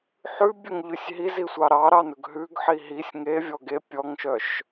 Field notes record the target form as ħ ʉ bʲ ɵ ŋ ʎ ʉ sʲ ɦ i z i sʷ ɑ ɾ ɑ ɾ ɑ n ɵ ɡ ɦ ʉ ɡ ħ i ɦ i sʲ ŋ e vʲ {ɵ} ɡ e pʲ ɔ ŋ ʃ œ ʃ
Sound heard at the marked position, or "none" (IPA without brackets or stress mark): ɔ